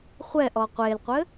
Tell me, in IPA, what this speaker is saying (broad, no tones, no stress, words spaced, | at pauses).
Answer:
χʷɛʔɔ qʷelqʷɘ